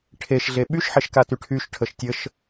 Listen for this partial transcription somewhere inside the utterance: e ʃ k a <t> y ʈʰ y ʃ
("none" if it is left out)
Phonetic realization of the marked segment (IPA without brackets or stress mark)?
t